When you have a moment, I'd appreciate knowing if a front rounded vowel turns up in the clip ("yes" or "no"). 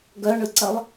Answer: yes